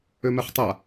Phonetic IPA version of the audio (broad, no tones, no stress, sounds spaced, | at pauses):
ø m ɛ χ tˤ a